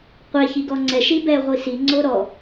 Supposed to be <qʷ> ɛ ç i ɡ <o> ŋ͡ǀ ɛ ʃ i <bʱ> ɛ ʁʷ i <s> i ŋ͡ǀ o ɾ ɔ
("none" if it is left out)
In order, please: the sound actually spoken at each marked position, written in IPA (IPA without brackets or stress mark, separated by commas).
qʷ, ɔ, b, s